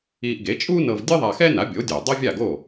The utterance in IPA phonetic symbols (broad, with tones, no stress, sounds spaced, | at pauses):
i˧ ʔ ɡ e˩˥ t͡ʃʼ u˥ n ɤ˧ v dʲ ɯ˥ ðˤ a˧ x ɛ˥ n a˩˥ bʲ o˩˥ dʲ ɤ˩ dˤ ɤ˥ vʲ a˥˩ ɡ o˥˩